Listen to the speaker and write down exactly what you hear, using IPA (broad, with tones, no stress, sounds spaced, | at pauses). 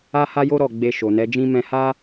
a˦ h a˦ j o˦ ɾ ɔ˦˨ ɡ͡b e˧ ʃ o˨ n ɛ˨˦ d͡ʒ ĩ˦ m ɛ̃˧ h a˦